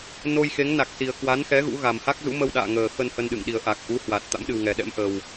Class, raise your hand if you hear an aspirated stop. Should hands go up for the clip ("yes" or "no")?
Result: no